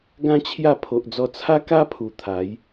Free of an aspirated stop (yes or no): no